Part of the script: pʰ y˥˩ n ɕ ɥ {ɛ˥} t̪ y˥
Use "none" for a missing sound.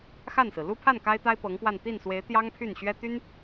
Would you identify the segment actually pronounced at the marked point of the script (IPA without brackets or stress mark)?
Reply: ɛ˥